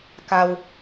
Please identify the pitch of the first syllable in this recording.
low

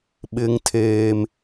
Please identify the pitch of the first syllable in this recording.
high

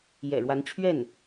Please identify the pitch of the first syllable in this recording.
low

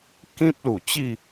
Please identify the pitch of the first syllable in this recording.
high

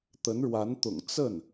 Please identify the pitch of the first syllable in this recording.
rising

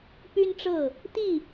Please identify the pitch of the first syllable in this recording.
high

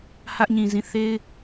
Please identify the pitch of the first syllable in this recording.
high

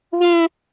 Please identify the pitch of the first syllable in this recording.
high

